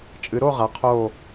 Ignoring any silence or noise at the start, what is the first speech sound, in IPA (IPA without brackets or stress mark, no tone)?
t͡ʃʼ